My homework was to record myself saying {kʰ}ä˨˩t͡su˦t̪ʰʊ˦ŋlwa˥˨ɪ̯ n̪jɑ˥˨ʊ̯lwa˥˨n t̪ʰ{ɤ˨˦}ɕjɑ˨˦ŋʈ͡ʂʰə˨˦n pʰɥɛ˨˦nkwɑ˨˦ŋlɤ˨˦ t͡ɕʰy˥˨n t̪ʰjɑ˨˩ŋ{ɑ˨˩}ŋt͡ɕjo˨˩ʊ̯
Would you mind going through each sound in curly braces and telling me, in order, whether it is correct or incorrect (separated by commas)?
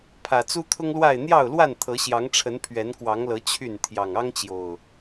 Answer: incorrect, correct, incorrect